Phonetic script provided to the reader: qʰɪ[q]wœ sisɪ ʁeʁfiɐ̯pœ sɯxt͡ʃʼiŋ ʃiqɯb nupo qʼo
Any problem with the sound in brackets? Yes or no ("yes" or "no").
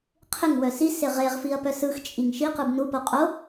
yes